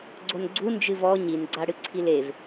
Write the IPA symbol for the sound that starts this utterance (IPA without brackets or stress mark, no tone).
ɡ͡ǀ